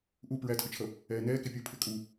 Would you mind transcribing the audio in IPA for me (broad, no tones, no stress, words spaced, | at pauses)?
ʔu pɹætʰʊt͡ʃʰʌ | ɛːnɛː kɪpʲu pʰɪkʼu